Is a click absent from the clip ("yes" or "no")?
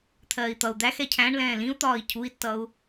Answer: yes